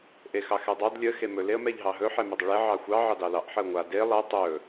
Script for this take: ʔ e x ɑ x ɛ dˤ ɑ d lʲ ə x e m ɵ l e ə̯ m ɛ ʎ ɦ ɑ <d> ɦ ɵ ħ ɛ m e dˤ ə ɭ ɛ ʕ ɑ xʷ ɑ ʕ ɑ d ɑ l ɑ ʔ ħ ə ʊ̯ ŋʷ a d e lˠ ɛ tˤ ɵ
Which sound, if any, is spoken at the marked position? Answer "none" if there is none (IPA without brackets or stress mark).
none